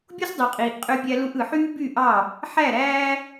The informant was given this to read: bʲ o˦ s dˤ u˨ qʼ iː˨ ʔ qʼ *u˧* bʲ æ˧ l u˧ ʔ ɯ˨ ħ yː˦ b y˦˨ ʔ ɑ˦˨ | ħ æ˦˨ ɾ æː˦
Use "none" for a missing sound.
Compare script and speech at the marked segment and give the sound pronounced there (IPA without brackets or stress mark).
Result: ø˧